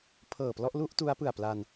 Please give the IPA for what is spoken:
pʰɤː˨˩plɔ˥˩ʔ lu˥˩ʔ tu˦˥a̯pɯ˨˩a̯pla˧n

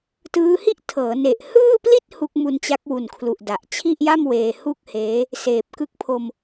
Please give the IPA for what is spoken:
tɯː˦˥hi˥˩ʔtʰɤː˩˦ ne˨˩ʔhɯː˥˩pli˥˩t̚ hu˦˥k̚mu˧n t͡ɕa˦˥k̚wu˨˩nkʰlu˨˩ʔ da˨˩ʔ t͡ɕʰi˥˩ʔja˥˩m weː˧hu˥˩k̚heː˦˥ | seː˨˩p̚kɯ˦˥k̚pʰo˧m

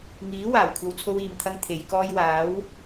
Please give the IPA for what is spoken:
ŋiː˨˥ waː˨˩wkʷʰɐ˧w t͡sʰo˥wiː˨mt̪ʰɐ˥ŋ t̪ʰe˨˧jkɔː˥j waː˨˥w

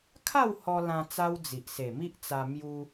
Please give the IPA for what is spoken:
kʰa˥˧w hɔ˧lã˧ t͡sa˦wd͡zi˨ʔ se˨˩mi˦ʔt͡sa˧ mju˧

